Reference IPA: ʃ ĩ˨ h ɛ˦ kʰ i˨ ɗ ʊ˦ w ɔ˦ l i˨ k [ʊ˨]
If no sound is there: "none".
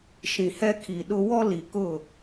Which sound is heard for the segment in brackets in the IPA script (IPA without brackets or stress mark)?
ʊ˦˨